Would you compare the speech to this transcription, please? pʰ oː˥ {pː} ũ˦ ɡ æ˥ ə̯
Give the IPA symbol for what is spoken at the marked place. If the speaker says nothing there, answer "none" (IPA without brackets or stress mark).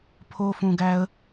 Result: f